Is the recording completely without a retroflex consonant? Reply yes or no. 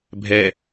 yes